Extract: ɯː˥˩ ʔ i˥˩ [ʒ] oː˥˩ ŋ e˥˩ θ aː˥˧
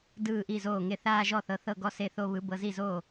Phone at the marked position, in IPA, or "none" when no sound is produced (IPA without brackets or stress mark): z